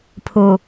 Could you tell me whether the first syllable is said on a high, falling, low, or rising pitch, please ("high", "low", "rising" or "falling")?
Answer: low